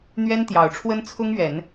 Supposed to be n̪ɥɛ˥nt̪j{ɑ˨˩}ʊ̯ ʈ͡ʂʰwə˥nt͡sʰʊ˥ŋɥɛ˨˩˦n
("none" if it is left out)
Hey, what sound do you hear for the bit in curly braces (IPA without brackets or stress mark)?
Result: ɑ˨˩